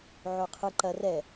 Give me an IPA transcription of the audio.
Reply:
ʕ o qʰ ɨ ǃ ɐ r ɛ

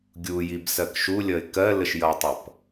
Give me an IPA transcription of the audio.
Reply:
ɡʲ u j i b s ɜ k ʃ u lʲ ʌ ɪ̯ k ɜ l ə ʃ j ʌ tˤ ʌ p

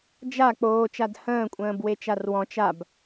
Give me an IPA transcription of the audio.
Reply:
d͡ʒ a k͡p oː t͡ʃ a d h ə̃ː kʷʼ ə̃ː b w e t͡ʃ a r w ɔ̃ t͡ʃ a b

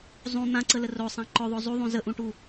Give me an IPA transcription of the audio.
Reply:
zˤ ũ n̪ ã ǀ ə l ə r o sˤ ã ǃ ɵ ðˤ o zˤ u ðˤ ũ z ə ʔ ũ ʈ u

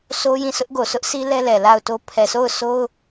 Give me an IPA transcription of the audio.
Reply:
sʰ o˦ j ĩ˦˨ sʰ ʊ˦ ʔ ɡ o˨ sʰ ʊ˦ ʔ sʰ i˦ l ɛ˦ l ɛ˨ l a˦˨ ʊ̯ t o˦ pʰ ɛ˨ s o˦˨ ʊ̯ sʰ o˦ ʊ̯

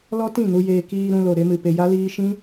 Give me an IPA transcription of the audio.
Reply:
l ɔ˦ t ĩ˦˨ n u˧ j eː˧ k iː˧ ɾ ũ˧ l o˨ ɾ e˧ m ɨ˨ p e˧ j a˦ l iː˦ ʃ ĩ˦

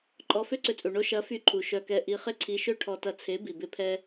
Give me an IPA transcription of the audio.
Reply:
ǃʼ ɔ˧ f ø˦ ǀ ʏ˧ t͡sʼ u˨ ɳ o˧ ʃ ɐ˨˦ f y˧ ǃʰ u˨ ʃ œ˧ k ɛ˧ ʔ i˧ χ ɪ˦ ǀʰ i˧ ʃ ø˦ ʈʰ ɔ˧ t ɐ˧ t͡sʰ e˨˦ b i˨ b ɪ˦ pʰ ɛ˦

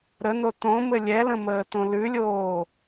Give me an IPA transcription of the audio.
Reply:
ɾ ə n o t õ m ɘ lʲ ɛ l ə̃ m əː t õ l ʉ lʲ oː

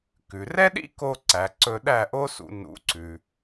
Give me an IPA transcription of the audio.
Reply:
k ʉ˩ r ɛ˥ ɗ ḭ˥ k o˧ ǀ æ˩ ǀ ɵ˧ ɗ æ˥˩ ʔ o˥ s ṵ˧ n ṵ˩˥ ǀ ʉ˩

